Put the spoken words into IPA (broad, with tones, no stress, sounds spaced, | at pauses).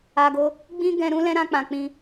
a˨ ɡ o˧ | ɡ͡b ĩ˦ ɡ ɛ̃˧ ɾ ũ˦ l ɛ̃˦ ɾ ã˧ k͡p ã˨ k͡p ĩ˧